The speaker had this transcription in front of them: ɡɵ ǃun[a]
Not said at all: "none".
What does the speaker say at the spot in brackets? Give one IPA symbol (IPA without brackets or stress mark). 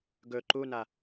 a